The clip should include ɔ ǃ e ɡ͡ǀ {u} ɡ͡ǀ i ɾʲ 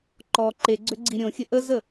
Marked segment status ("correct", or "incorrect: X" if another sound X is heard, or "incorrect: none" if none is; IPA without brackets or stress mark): incorrect: ø